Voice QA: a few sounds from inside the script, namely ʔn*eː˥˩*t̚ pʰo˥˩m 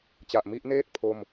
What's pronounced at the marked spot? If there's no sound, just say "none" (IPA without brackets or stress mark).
eː˥˩